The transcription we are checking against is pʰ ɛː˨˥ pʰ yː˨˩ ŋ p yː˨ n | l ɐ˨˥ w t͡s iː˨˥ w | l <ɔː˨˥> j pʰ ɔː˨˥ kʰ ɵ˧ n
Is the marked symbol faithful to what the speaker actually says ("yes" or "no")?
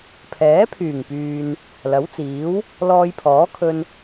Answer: no